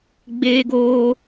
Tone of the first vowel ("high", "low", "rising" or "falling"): high